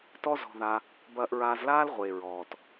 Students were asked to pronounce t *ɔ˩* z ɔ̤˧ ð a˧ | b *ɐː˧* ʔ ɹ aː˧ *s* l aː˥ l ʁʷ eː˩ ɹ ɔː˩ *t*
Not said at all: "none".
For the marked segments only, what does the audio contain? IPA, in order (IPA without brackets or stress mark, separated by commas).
ɔ˥, ɐː˧, z, t